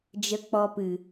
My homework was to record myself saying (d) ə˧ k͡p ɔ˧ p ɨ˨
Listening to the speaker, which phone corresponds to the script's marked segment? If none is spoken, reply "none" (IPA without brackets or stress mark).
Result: d͡ʒ